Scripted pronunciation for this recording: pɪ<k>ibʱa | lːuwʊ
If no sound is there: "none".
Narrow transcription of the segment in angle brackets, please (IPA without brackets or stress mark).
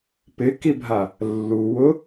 k